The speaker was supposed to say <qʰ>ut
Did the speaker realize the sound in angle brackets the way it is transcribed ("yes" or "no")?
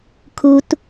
no